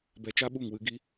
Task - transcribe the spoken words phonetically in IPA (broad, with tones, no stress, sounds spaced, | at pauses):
b ɛ˧ t͡ʃ a˦ ɓ u˦˨ ŋ w ɨ˨ ɡ i˧